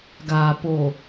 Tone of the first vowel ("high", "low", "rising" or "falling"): low